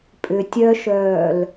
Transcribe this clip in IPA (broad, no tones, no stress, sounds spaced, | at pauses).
pʼ ʏ tʲ œ ʃ œː l